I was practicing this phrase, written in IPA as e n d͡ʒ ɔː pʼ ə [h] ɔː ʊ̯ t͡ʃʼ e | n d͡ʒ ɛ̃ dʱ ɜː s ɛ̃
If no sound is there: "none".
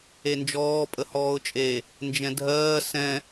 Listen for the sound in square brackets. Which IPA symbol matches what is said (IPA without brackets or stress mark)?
h